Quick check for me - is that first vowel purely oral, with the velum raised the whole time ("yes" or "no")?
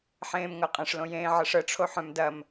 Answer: no